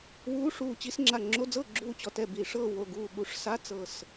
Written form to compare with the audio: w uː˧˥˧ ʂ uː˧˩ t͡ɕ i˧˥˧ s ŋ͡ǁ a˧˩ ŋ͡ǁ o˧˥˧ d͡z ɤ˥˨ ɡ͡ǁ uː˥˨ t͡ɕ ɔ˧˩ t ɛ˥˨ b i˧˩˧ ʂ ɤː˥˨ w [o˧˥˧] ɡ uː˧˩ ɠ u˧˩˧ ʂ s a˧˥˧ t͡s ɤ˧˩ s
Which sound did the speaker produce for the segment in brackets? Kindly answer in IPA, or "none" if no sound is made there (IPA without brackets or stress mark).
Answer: o˧˩